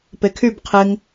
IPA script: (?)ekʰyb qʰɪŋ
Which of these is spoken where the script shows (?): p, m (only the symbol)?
p